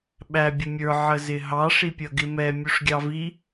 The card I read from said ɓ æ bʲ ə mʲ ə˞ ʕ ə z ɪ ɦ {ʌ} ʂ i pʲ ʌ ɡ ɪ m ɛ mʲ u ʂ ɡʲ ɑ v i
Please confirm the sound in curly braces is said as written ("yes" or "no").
no